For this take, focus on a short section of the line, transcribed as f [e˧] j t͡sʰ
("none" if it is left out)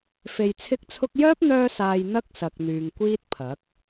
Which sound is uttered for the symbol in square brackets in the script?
e˧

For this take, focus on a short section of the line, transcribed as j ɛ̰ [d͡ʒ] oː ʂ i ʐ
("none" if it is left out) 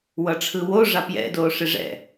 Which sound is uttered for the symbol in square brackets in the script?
d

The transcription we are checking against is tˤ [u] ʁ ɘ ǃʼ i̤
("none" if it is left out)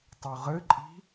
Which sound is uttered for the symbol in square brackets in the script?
u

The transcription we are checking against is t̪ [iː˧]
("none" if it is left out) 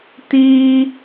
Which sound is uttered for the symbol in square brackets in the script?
iː˧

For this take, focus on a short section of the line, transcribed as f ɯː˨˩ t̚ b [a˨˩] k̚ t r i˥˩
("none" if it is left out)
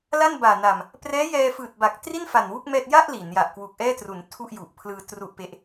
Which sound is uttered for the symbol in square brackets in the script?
a˨˩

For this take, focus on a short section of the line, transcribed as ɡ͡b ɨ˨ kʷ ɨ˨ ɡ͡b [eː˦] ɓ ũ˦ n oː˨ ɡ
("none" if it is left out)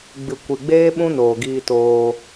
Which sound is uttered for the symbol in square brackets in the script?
eː˦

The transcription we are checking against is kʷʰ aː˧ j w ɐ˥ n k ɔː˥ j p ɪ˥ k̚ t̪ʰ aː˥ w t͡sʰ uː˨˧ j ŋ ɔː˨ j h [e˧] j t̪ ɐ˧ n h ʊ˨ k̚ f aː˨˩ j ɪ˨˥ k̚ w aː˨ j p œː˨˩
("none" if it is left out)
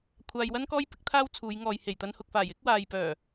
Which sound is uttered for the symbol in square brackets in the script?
e˨˩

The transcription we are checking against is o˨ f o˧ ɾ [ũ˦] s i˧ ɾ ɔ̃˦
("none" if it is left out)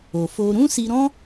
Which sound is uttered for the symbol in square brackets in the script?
ũ˦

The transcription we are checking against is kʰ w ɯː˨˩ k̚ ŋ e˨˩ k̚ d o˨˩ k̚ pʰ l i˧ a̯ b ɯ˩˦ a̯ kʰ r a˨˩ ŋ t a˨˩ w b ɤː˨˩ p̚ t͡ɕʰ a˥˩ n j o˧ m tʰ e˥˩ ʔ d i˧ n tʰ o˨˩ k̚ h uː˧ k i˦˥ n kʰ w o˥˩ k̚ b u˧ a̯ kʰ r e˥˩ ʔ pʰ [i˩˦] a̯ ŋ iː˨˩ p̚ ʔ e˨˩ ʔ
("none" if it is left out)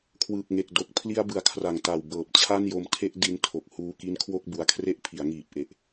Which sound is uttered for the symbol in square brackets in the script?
i˩˦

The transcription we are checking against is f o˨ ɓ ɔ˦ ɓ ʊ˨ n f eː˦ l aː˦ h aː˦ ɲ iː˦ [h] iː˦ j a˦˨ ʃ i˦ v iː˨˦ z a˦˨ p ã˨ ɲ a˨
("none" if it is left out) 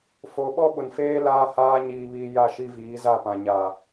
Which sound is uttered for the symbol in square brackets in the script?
β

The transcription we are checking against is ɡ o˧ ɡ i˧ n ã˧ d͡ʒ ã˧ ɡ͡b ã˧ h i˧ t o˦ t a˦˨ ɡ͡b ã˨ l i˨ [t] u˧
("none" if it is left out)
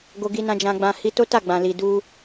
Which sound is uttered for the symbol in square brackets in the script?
d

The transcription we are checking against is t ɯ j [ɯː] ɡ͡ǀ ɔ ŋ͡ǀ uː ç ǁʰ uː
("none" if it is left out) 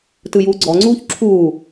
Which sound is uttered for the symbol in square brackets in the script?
uː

